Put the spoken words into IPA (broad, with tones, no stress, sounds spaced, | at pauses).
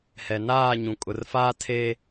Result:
h ɛ˨ n aː˦˨ ɲ ũ˨ kʼ ʊ˨ r f aː˦ tʰ e˦